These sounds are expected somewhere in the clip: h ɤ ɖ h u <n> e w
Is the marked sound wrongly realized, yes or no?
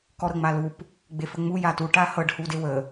yes